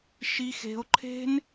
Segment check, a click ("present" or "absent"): present